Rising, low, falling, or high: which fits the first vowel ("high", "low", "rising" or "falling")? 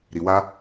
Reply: low